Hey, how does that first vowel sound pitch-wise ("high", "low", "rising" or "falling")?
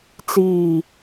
falling